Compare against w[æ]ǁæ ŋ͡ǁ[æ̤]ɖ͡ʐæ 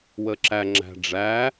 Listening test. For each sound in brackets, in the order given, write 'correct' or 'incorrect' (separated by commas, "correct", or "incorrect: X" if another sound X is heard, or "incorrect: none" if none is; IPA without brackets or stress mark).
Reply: incorrect: ə, correct